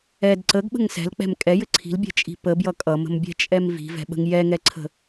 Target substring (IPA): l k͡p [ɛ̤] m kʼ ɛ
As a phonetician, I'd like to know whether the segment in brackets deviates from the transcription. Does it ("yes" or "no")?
no